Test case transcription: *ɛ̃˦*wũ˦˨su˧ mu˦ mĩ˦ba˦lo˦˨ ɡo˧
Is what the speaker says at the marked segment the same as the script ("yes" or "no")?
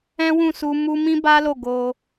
yes